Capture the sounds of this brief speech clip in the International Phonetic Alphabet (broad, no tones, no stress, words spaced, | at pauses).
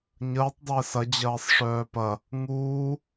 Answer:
ɲəːtˤ dˤɪːsɐ d͡ʑɐːsˤʂœːpɐ | ŋuː